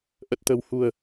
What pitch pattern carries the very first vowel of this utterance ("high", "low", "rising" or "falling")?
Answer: low